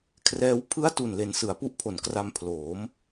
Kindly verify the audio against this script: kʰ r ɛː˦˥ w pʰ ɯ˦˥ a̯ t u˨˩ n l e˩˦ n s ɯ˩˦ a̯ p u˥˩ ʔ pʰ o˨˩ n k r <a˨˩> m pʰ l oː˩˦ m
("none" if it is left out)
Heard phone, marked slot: a˧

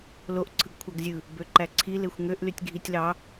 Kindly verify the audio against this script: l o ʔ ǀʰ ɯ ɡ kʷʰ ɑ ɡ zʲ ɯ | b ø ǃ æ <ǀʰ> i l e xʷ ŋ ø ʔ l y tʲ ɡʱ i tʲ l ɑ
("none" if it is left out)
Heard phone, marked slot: ǀʰ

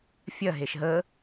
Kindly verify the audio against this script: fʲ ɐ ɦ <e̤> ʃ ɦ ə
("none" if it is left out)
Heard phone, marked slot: e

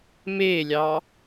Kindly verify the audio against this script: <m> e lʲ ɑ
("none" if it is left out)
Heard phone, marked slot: m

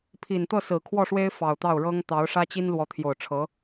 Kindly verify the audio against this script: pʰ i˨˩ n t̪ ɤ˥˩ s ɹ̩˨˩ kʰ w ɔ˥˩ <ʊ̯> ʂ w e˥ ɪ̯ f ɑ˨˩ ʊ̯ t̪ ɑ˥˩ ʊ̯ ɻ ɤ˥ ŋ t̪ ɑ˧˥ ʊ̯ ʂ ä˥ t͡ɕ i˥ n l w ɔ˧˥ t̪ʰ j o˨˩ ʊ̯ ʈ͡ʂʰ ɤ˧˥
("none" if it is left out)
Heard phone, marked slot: none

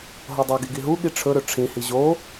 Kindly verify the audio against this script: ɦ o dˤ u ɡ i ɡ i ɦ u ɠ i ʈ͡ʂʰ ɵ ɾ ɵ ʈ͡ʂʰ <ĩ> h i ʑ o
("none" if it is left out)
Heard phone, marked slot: ĩ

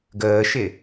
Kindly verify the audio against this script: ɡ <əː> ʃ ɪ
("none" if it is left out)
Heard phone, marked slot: əː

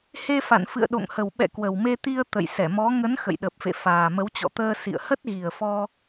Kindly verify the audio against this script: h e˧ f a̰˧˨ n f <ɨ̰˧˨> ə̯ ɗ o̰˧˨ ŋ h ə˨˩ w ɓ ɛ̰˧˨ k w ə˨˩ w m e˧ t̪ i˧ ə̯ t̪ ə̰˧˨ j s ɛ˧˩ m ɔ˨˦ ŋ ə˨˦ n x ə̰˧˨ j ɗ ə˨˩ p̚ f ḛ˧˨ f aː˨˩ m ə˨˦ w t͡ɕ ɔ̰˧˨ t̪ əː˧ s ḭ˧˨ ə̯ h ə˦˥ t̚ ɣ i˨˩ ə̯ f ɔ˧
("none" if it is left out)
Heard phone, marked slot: ɨ̰˧˨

